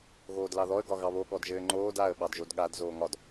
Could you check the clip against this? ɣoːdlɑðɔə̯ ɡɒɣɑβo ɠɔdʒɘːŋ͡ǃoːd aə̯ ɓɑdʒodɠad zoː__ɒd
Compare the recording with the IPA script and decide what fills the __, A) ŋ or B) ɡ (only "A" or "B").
A